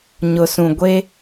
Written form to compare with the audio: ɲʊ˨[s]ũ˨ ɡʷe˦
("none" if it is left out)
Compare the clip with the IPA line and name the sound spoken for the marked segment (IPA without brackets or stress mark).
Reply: s